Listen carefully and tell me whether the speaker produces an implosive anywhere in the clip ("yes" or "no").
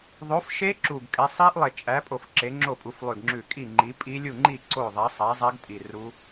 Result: no